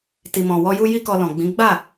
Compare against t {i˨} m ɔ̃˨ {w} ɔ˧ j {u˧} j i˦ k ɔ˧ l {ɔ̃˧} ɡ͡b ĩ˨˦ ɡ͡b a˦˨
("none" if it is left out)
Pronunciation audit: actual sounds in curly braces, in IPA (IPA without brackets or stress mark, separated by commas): i˨, w, u˧, ɔ̃˨